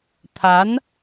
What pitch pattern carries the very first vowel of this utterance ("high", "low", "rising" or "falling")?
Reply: rising